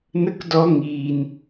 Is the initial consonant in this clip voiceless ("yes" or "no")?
no